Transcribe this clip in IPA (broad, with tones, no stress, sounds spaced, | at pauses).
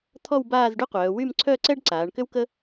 t̪ʰ ɔ˥˧ w b aː˥˧ z ɖ y˥ qʷ œː˩˧ w y˥˧ m ǀʰ œ˥˧ ǀ ɛ˥ ɖ ǀ aː˩˧ ɳ k ʏ˥ w k ə˥